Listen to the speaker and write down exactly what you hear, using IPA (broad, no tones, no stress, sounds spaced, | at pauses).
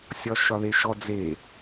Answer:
sʲ ɒ ʃ ɒ ð e ʃ ɔ d͡z e